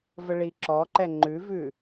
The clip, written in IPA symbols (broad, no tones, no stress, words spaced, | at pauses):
vəɭiǁɔǃɛ ŋ͡ǃʉvʉ